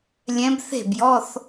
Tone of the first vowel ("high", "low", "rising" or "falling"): rising